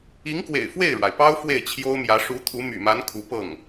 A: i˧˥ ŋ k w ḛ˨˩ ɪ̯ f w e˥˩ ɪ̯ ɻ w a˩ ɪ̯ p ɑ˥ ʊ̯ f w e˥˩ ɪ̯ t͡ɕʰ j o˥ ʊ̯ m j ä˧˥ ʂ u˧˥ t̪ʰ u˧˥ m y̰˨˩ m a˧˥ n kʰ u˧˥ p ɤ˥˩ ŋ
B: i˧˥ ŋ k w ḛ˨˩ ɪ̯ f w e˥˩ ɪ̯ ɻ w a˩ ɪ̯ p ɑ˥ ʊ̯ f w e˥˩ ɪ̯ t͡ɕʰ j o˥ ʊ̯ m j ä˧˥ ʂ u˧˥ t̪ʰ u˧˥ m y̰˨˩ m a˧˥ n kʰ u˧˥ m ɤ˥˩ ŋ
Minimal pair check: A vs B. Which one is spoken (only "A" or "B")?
A